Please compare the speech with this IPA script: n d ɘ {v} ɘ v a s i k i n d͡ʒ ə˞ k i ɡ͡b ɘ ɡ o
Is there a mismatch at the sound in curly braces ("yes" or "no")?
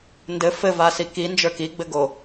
yes